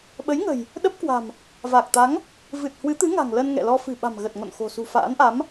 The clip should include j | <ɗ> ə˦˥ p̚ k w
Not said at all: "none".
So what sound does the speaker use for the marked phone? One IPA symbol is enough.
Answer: ɗ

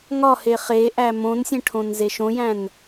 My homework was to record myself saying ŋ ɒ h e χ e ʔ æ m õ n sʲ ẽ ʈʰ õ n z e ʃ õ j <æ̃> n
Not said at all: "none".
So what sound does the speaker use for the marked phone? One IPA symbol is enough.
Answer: æ̃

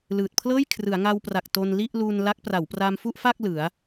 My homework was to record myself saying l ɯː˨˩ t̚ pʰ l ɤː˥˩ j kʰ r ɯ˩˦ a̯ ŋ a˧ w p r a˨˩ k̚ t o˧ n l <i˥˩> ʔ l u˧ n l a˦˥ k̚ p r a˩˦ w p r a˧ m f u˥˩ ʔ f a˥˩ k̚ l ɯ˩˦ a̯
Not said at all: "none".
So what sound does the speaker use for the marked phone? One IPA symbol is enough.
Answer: i˥˩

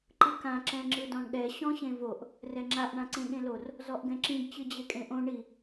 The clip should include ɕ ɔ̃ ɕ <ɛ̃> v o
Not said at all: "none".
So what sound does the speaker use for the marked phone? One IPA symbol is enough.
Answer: ẽ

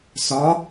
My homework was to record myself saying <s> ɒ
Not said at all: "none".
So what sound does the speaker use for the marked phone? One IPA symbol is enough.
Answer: s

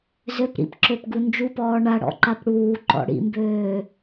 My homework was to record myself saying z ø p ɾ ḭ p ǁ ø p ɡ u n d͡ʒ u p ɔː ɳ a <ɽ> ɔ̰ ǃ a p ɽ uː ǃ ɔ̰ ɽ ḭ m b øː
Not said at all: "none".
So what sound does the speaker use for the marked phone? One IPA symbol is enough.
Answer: ɽ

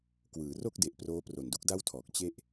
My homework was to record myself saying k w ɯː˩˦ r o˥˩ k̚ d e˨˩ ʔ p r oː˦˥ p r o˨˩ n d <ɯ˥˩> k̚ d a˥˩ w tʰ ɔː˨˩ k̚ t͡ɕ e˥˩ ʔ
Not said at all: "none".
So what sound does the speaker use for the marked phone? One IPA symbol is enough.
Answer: u˥˩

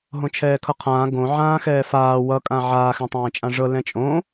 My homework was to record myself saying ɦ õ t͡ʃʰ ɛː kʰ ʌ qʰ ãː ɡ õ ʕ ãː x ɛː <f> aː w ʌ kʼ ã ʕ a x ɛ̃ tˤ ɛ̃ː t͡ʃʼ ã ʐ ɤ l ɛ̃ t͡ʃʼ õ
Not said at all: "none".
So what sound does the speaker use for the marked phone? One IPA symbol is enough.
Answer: f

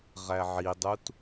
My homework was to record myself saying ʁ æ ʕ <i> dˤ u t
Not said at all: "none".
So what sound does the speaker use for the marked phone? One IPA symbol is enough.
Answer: i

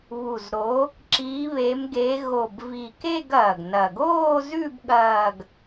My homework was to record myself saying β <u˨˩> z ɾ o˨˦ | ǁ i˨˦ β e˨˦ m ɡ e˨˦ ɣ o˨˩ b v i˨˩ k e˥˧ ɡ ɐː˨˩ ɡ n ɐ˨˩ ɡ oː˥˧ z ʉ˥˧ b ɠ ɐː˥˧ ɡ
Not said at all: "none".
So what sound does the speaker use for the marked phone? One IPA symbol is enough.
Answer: u˨˩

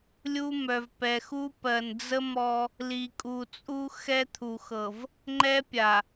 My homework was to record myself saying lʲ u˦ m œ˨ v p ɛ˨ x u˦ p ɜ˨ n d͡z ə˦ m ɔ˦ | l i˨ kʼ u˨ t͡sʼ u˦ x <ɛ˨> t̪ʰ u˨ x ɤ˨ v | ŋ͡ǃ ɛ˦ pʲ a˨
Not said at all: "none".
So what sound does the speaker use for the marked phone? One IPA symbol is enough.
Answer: ɛ˦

